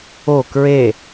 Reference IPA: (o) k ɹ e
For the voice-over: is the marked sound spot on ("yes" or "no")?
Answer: yes